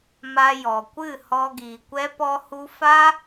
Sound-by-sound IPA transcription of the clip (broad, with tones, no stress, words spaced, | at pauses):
ma˧jɔ˨kʷɨ˦˨ hɔ˧ɡiː˨kʷɛ˦ pɔ˧hu˧ fa˦